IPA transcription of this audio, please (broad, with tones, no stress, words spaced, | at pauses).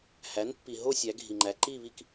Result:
hæ˩˥n pːi˩ɦo˥˧ sʲæ˩˧ɡʱi˩ŋ͡ǃæ˩˧ ǃi˥˧βi˥˧k